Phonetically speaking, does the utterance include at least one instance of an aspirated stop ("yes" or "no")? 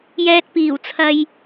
yes